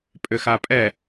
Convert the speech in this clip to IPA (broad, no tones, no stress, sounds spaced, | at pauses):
pʼ ʏ x a pʼ ɛ